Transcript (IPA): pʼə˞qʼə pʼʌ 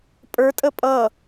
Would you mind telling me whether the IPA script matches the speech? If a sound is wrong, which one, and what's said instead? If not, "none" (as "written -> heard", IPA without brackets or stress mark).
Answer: qʼ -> tʼ